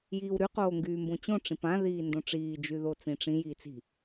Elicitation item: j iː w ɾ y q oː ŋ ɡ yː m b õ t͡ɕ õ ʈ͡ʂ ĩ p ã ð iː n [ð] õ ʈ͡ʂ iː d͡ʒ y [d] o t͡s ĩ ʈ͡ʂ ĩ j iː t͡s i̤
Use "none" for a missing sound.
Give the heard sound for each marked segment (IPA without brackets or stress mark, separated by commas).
d, ð